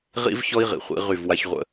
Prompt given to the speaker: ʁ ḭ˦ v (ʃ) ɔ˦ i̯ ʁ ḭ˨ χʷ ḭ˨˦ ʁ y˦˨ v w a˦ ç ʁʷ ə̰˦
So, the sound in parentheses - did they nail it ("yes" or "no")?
no